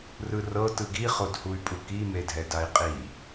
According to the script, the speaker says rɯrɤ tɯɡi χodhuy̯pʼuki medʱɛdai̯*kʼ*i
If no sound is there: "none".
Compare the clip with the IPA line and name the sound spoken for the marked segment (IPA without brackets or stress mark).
qʼ